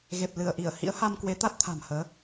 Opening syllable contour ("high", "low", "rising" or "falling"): low